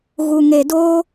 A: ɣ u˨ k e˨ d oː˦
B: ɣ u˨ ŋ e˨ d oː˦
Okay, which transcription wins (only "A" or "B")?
B